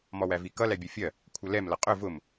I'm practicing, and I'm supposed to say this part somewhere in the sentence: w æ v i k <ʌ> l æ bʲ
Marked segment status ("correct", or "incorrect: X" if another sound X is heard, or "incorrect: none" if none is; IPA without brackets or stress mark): correct